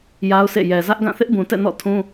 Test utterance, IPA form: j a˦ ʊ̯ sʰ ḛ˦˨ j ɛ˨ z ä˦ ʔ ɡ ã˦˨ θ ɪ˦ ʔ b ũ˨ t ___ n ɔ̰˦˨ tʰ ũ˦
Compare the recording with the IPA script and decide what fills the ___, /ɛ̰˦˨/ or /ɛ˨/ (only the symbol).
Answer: ɛ̰˦˨